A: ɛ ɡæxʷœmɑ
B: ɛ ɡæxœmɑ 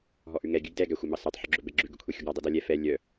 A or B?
A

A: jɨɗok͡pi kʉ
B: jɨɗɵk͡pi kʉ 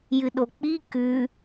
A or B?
A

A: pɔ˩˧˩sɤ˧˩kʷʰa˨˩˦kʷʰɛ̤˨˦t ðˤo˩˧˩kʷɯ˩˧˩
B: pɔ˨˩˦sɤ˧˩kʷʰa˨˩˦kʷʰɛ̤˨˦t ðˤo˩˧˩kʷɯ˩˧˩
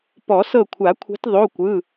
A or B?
B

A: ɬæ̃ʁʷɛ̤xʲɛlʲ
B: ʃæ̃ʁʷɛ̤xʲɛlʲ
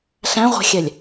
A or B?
A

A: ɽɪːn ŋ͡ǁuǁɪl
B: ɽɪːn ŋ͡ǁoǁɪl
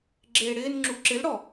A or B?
A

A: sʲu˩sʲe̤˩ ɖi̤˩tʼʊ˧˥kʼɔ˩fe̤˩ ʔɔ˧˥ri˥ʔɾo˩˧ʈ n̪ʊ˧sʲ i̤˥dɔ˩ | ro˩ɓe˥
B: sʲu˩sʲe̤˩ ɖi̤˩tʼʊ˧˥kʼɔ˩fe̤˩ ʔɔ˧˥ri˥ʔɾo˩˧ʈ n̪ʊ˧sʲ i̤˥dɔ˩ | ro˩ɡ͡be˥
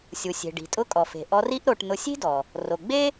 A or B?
B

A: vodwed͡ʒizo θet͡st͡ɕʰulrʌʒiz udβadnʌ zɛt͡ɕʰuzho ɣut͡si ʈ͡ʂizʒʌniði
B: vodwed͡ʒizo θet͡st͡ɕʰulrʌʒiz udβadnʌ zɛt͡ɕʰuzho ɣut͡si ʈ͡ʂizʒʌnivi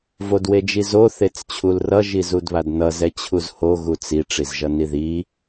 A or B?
A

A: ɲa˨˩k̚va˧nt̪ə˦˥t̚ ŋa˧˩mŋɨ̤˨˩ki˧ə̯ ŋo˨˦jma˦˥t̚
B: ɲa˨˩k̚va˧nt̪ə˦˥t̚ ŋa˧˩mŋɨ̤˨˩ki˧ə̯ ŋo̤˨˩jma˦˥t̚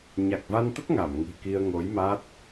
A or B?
A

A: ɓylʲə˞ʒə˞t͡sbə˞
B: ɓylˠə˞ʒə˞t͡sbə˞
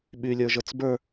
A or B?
A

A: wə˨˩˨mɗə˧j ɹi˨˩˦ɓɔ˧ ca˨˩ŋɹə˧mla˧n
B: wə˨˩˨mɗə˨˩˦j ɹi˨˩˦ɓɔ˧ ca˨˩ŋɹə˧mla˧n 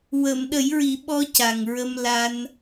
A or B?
B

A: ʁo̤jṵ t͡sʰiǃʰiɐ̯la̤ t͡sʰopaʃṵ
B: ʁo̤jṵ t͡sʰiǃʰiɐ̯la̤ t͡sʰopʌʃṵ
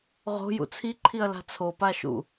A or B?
A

